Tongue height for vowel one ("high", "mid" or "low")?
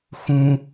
high